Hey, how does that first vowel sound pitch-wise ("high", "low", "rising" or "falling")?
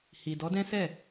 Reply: low